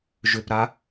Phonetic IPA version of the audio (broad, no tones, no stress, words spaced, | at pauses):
ʒʏpɾa